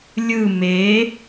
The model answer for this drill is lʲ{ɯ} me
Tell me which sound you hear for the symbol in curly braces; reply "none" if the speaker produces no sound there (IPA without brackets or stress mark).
ɯ